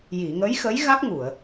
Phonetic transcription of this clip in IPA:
ji˨˩˨ŋə˧˥jxə˧˥j ɣa˦˥k̚ŋu˨˩˨ə̯

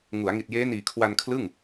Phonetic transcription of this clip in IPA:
ŋu˩˦a̯ ŋi˨˩t̚jeː˦˥niː˨˩ kʰwa˧nkʰlɯ˥˩ŋ

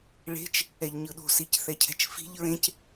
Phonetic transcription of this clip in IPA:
ɭe̤t͡ʃ | ɛʎɲɯɗo̤ sicθɛcʰɛ̤t͡ʃfi̤ʎ ɹẽc

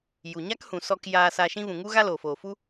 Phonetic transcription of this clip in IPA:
ju˨ɲa˦khũ˨ sɔ˧k jaː˧sa˧ʃĩ˦ vũ˨ŋu˦ɣa˦ loː˨foː˨fu˦

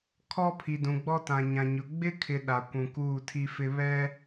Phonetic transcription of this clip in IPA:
kʰɔ˦pʰi˨dũ˨ ɡ͡bɔ˦tã˨ɲã˨ɲʊ˨ ɡ͡bɪ˦kʰɪ˨ ɗa˨ kʷũ˨ kuː˦˨tʰi˦fɪ˦ βɛ˦

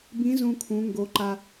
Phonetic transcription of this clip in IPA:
bĩ˧˥ zũ˧kʰũ˩˧ŋɡo˩˧ ǃa˩

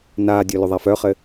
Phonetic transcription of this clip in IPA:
naːdʲʊ lʊðˤafœχɘ

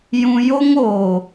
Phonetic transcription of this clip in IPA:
jũ˧jo˦ŋoː˨

